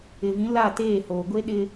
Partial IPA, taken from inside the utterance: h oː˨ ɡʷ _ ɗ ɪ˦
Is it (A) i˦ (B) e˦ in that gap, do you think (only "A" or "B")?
B